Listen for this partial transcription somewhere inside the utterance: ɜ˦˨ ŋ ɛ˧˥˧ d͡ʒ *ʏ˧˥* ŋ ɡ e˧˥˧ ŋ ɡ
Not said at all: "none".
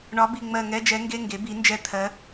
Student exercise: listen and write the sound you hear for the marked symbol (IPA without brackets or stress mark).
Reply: ɛ˧˥